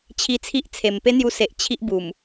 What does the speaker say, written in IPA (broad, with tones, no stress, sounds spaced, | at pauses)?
t͡ɕʰ i˧ t͡sʰ i˦ ʔ t͡sʰ e˨˩ m p e˦ n̪ j u˧ s e˨ ʔ t͡ɕʰ i˦ ʔ b u˨˩ m